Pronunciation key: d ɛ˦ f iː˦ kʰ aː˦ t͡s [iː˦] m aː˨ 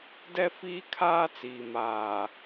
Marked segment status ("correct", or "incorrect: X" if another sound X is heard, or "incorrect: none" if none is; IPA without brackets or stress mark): incorrect: iː˨